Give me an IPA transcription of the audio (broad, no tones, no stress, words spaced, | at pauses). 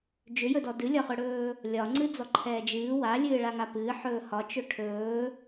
d͡ʒʏjɵdɔ dɨlʲɒχɵɽɵː | lʲɒŋ͡ǀɨd͡zɔǃʰɛː d͡ʒɨː walʲɨːɭaŋa pɨːħɵː hɒt͡ʃɵ ʈʰɵː